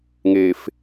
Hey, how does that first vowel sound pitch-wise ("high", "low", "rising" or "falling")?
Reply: low